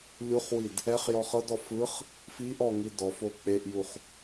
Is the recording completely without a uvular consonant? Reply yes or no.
no